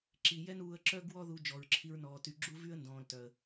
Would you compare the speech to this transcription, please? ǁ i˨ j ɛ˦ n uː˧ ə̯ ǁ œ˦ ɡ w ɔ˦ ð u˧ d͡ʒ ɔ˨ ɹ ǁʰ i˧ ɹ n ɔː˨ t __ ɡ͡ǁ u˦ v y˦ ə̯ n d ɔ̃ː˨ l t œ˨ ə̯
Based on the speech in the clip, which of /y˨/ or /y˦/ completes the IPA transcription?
y˨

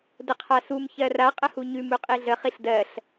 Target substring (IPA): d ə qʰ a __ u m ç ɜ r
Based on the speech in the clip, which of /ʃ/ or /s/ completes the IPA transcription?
s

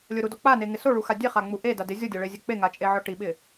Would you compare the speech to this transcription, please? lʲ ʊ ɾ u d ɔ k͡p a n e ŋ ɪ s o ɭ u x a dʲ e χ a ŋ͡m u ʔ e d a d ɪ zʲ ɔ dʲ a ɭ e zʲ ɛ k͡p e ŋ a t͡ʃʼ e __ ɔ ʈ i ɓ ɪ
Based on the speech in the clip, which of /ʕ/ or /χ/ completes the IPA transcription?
ʕ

